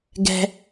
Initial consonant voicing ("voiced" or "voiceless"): voiced